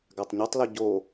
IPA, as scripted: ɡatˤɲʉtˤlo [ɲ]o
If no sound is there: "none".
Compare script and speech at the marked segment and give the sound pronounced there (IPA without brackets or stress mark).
ɟ